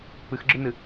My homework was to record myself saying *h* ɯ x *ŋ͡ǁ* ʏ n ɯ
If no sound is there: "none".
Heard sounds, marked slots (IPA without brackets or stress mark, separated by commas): p, ɡ͡ǁ